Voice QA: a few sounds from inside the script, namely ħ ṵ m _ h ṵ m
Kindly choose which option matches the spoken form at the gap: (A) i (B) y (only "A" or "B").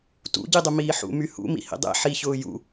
B